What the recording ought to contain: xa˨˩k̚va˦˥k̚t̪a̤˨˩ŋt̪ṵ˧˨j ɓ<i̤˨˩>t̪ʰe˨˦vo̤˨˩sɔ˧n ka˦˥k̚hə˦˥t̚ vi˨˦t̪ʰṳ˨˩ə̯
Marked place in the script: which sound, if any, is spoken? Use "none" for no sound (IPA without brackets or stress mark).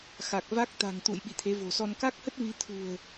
ḭ˧˨